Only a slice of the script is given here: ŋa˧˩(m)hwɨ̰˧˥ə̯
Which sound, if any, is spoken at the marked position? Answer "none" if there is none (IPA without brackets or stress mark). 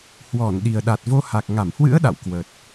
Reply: m